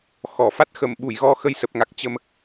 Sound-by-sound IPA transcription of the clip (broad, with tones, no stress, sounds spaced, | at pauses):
x ɔ˧˩ f a˦˥ t̚ x ə˧˩ m ɓ u˧˩ j ɣ ɔ˧ x ə˧ j s ə˨˩ p̚ ŋ a˨˩ k̚ t͡ɕ ə˧ m